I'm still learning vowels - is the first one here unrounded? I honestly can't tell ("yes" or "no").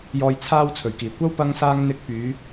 no